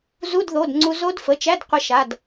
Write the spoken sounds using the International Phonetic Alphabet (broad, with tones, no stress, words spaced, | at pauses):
zu˧˥˧dðo˩˧˩dŋ͡ǀu˧ zo˦˥dfə˩˧˩t͡ʃæ˧˥˧d qʷə˧ʃa˩˧˩d